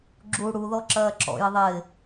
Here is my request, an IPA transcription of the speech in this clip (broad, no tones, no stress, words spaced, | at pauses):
ɡ͡ǁu ɽuðɔ ǁɜːǁɔ̰jɪ ðˤɪː